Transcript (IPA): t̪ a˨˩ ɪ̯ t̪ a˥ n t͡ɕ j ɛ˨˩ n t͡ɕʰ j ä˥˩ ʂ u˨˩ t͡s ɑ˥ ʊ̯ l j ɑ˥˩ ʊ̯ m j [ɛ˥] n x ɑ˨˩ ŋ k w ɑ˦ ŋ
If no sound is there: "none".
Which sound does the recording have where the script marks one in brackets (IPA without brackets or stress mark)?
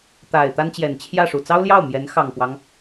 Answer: ɛ˧˥